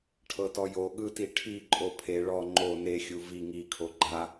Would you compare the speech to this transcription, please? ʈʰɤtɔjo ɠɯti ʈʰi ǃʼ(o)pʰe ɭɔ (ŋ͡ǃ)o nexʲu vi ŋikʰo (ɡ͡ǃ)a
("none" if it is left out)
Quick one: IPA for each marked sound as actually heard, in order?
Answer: o, ŋ͡ǃ, ɡ͡ǃ

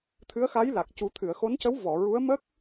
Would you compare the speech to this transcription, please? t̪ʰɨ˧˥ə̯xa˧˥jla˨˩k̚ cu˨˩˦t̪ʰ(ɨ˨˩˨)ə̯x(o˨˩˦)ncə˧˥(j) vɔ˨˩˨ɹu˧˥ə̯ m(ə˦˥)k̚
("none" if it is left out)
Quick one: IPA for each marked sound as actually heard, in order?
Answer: ɨ˨˩˨, o˧˥, w, ə˦˥

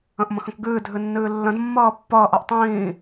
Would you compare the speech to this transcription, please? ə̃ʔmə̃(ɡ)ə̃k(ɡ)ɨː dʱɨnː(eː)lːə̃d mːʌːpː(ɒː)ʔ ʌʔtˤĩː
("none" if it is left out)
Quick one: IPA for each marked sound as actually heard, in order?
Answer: x, ɡ, ɨː, ʌː

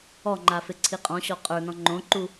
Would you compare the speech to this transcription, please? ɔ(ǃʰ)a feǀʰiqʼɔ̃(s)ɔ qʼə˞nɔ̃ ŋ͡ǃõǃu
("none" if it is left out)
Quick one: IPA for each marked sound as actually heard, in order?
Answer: ŋ͡ǃ, ɕ

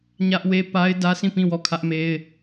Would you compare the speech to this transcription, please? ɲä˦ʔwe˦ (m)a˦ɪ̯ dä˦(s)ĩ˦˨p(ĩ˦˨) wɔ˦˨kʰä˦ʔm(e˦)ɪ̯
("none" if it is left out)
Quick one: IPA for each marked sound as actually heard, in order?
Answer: p, s, ĩ˦˨, e˦

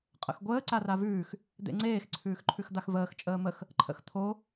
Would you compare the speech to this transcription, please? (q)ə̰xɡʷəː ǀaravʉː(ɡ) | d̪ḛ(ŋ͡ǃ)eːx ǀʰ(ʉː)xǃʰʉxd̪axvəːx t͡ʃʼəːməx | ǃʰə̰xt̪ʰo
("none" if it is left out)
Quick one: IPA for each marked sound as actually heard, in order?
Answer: qʼ, x, ŋ͡ǀ, ʉː

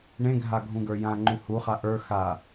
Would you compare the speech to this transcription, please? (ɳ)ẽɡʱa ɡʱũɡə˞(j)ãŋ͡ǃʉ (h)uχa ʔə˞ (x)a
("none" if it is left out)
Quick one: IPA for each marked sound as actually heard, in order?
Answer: ɳ, j, h, x

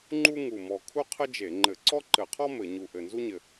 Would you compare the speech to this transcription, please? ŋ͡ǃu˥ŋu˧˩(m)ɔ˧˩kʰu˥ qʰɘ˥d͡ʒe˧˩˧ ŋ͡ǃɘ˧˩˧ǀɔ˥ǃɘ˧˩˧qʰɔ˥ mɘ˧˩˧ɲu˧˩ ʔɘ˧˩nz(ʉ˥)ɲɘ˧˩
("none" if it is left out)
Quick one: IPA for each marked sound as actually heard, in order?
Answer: m, u˥

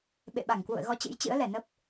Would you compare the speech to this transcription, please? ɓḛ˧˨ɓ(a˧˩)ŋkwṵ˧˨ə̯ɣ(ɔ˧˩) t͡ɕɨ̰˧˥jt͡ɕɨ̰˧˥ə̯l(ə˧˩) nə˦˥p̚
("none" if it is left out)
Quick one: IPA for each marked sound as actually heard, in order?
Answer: a˧˩, ɔ˧, ɛ˧˩

